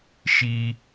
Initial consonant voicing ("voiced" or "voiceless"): voiceless